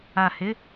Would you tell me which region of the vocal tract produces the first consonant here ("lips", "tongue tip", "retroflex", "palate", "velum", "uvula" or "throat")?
throat